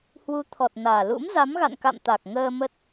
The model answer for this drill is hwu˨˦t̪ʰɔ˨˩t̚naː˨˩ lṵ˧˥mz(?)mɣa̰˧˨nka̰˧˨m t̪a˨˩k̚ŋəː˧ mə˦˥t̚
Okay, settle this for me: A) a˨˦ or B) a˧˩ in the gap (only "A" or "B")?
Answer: A